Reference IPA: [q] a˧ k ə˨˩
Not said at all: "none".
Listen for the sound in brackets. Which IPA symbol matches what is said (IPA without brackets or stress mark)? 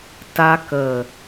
t